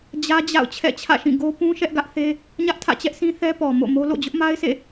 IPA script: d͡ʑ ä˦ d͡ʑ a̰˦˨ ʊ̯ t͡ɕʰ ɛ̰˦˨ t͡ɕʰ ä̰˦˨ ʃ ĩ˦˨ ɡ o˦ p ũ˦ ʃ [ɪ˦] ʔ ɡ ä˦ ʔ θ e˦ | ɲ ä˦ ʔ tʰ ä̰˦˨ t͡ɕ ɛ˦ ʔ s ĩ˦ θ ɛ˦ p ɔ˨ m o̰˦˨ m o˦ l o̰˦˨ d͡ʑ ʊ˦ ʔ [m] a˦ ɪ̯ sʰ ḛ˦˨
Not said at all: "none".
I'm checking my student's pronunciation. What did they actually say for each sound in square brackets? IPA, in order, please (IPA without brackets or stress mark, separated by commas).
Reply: ɛ˦, m